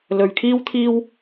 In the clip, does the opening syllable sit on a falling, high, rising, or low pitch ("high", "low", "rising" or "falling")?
low